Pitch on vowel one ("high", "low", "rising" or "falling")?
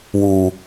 low